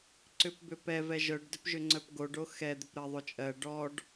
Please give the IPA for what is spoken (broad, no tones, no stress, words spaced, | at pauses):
ǀʏpbʏpɛ vɛʒœɖ dʏpʒʏŋ͡ǀœpɡoɖ oxɛ d̪ʏpɾɜðˤot͡ʃʼɜ ɖɔɖ